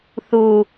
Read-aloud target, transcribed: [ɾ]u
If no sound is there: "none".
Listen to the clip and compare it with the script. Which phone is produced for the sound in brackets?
θ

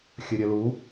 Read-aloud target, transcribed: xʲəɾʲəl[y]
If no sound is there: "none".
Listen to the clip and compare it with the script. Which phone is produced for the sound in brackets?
u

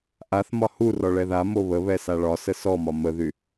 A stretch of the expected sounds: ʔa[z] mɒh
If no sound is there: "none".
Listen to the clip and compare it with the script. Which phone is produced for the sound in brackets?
θ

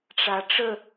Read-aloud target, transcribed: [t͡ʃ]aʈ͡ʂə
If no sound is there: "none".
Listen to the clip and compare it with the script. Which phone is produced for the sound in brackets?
ʈ͡ʂ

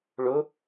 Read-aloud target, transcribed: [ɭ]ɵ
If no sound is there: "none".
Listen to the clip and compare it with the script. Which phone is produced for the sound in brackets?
ɭ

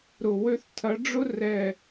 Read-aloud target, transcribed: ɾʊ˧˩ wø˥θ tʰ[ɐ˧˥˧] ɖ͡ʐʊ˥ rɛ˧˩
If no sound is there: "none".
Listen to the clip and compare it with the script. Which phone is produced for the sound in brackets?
ɐ˨˥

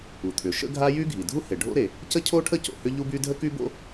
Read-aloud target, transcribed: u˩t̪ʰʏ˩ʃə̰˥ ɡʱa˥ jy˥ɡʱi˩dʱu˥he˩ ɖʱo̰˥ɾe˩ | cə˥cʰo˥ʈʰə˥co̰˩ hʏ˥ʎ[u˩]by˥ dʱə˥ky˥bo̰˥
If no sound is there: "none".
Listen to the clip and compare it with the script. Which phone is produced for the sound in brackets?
u˥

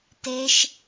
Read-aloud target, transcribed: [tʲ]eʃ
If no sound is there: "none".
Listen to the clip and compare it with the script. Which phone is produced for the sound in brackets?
t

